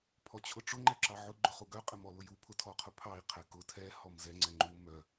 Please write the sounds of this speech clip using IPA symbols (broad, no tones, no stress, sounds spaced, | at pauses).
pʰ ɔ t͡ɕʰ ʊ ʈ͡ʂ ʊ ŋ͡ǃ ɛ ǁ ɑ ʕ ʊ ɡ͡ǃ ʊ χ u ɡ œ qʼ ɛ m ɔ l ʊ j u pʰ ʊ tʰ ɔ qʰ ʊ pʰ ɑ i̯ qʰ ɛ k ʊ tʰ ɛ h ɔ m z ɛ ŋ͡ǀ ɛ ŋ͡ǃ u m œ